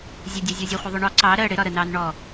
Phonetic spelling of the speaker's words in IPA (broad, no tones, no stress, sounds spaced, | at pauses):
zʲ ə dʲ ʌ zʲ ɔ zʲ ɔ χʷ ʌ ðˤ ʊ ɳ ɔ ǀ ɑ ɾ ɜ ɽ ɪ ɾ ɒ ɾ ə n ɑ n ɳ ɔ